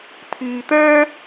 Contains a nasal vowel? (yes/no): no